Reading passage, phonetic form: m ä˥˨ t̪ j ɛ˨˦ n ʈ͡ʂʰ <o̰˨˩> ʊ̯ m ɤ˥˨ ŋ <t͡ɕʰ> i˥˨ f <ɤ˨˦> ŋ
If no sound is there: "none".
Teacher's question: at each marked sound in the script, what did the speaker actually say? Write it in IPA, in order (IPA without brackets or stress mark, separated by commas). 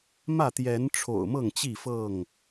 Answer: o̰˨˩, t͡ɕ, ɤ˥˨